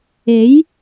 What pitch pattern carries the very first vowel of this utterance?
rising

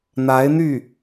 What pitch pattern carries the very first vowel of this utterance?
rising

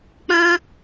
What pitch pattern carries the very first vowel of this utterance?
high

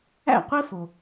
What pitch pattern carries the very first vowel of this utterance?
falling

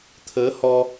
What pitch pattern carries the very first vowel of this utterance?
rising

